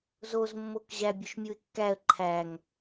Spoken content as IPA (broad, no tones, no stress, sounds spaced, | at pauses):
z o z mː o k ʑ æ bʲ o ʃ mʲ u ɪ̯ kː æ ə̯ ǃʰ æ ŋ